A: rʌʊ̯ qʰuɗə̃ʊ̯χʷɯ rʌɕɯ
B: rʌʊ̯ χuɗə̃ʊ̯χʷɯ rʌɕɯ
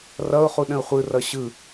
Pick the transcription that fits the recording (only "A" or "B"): B